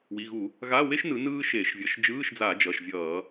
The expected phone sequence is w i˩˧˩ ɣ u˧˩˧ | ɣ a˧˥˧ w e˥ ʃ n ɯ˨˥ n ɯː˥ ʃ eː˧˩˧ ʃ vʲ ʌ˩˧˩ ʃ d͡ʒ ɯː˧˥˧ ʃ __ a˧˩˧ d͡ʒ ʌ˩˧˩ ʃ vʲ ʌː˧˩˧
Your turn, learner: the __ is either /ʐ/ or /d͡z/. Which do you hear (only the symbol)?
d͡z